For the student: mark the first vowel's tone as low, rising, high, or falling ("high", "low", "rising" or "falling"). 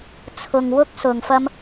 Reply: low